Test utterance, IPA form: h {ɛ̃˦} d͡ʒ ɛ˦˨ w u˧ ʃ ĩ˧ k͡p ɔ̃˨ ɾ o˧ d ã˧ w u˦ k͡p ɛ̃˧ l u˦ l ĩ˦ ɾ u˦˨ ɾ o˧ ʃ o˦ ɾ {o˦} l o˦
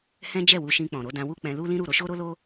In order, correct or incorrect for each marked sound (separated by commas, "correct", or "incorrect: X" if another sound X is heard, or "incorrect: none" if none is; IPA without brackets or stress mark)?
correct, correct